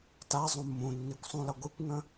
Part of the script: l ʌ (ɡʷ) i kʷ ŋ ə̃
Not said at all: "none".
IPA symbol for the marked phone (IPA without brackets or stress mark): ɡʷ